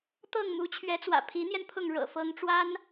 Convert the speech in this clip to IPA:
t̪ ɤ˥˩ ŋ m u˧˥ t͡ɕʰ ɥ ɛ˧˥ t͡s w ä̰˨˩ pʰ i˧˥ n̪ j ɛ˧ n pʰ ʊ˥˩ ŋ ɻ ɤ̰˨˩ f ɤ˧˥ ŋ ʈ͡ʂ w a˥ n

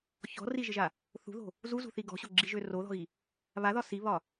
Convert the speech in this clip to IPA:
ç ɔ̤ r i ʒ ɪ ʒ a | θ ṳ ð o̤ | z u z ṳ θ i ɡ ɔ̤ ɕ o ɡ͡ǁ i ʒ ø r o ð ɔ̤ ɣ i | β a ð ɒ s i β ɒ

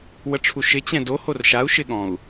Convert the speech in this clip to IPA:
w ə ʈ͡ʂʰ u ʃ ɪ t͡ɕ ɛ̃ d o h o r ʃ a u̯ ʃ ɪ ɠ ɔ̃ u̯

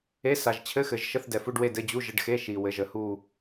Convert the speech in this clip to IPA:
e˧˥˧ s a˨ ʒ t͡ɕʰ ɘ˧˥˧ x ɘ˨ ʒ ʃ ə˧˥˧ θ d ɛ˨ f u˧˥˧ ɖ w e˥˧ d ɘ˧˥˧ d͡ʑ u˧˥˧ ʒ ə˧˥˧ ɖ x e˧˥˧ ʃ i˨ w ɘ˨˦ ʒ ə˨˦ h u˥˧

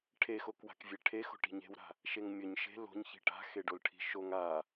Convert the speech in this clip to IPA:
ʈʰ e x o k w a̤ k vʲ e ʈʰ e x o̤ ʈ i̤ ɲ e̤ w ɾ a̤ | ʃ e ŋ mʲ ɵ ɲ ʃ e̤ l o̤ ɲ ç i̤ ʈ a̤ x e ɖ o l ʈʰ i̤ ʃ o ŋ a

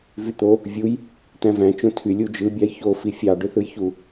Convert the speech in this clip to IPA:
v y t̪ o | vʲ u j | t̪ æ̃ v æ̃ t͡ʃ õ tʰ y lʲ u d͡ʒ ɯ bʲ ɑ j ç o f i fʲ ɑ ɖ ø θ ɯ j ç u

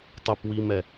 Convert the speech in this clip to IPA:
tˤ ə p w i m ɛ

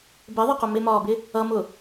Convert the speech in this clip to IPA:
b ɪ ðˤ ɪ q ʊ m ɪ m ɒː b ɪ | ʌ m ʊ

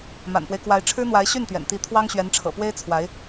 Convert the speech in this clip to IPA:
m a̰˨˩ n p w e˦ ɪ̯ k w a˧˥ ɪ̯ ʈ͡ʂʰ ɻ̩˥ n̪ w a˧˥ ɪ̯ ɕ y˥˩ n t̪ ɥ ɛ̰˨˩ n t̪ i˧˥ t̪ʰ w ɑ˥ ŋ ɕ ɥ ɛ˧˥ n ʈ͡ʂʰ ɤ̰˨˩ p w e˥ ɪ̯ t͡sʰ w a˧˥ ɪ̯

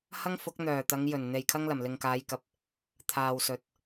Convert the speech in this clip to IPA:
h ɐ˥ ŋ f ʊ˨˥ k̚ n̪ œː˨˩ t̪ ɐ˨˧ ŋ j ɵ˨˩ n n̪ e˨ j kʰ ɐ˥ ŋ l ɐ˨˩ m l ɪ˨ ŋ k aː˨˧ j k ɐ˨ p̚ | t̪ʰ aː˨ w s ɵ˨ t̚

